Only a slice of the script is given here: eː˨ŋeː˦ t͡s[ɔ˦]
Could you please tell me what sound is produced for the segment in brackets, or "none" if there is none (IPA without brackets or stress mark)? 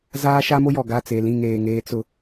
ʊ˦